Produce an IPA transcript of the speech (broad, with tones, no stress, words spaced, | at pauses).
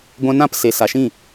ɡʷɛ̃˧nã˦˨p se˨ sa˨ʃĩ˦˨